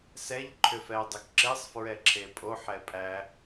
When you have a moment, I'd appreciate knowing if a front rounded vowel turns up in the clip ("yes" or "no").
yes